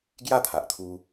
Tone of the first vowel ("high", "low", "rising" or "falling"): falling